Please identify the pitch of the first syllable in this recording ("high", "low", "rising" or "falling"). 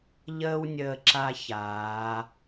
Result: high